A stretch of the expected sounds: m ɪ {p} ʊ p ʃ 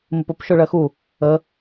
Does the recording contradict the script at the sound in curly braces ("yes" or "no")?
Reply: no